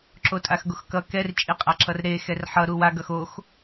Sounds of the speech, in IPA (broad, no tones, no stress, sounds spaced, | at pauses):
ǁ o tʼ a x ɡ o x k ʌ k ɛ r t͡ʃʼ i qʼ a ǁ ʌ r ɾ e x ɛ r ħ ʌ ɾ u w a ɡ ʌ x o x